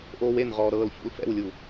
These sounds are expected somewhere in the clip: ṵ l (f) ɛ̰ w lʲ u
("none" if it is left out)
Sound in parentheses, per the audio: f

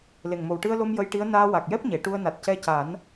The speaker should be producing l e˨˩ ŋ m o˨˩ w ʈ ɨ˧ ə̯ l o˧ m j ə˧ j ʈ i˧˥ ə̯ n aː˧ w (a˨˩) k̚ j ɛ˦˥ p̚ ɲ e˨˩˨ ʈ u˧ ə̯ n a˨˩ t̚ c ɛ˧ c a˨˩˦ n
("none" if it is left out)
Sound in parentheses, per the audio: a˨˩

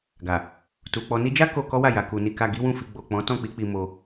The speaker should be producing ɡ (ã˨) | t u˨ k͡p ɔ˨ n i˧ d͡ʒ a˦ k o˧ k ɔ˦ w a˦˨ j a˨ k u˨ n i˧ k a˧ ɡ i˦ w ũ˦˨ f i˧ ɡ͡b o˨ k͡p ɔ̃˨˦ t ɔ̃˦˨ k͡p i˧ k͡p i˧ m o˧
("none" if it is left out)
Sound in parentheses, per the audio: a˨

